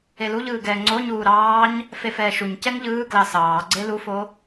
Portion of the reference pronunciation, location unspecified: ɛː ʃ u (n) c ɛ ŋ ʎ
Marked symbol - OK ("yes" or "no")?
no